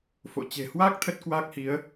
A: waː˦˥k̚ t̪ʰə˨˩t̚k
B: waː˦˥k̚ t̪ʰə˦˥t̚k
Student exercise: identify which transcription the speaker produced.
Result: B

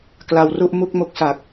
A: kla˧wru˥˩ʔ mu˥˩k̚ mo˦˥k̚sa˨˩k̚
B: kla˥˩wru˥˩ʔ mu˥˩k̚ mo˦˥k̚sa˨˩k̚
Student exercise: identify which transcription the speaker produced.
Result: A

